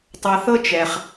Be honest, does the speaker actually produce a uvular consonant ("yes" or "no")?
yes